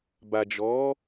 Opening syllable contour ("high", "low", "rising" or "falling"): low